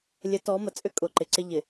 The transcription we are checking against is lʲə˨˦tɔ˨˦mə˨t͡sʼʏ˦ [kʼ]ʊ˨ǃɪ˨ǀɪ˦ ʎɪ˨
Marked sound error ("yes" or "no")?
no